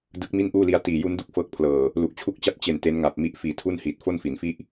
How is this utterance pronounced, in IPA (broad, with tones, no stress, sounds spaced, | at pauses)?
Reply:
d ɯ˦˥ k̚ m i˥˩ n ʔ uː˥˩ l i˦˥ a̯ t iː˨˩ j u˦˥ n d u˥˩ k̚ f ɤː˦˥ k̚ pʰ l ɤː˨˩ | l u˨˩ ʔ t͡ɕʰ u˥˩ k̚ t͡ɕ a˥˩ p̚ t͡ɕ e˨˩ n t e˦˥ n ŋ a˨˩ p̚ m i˦˥ ʔ f iː˨˩ tʰ u˥˩ n h iː˨˩ t̚ f o˥˩ n f i˩˦ n f i˥˩ ʔ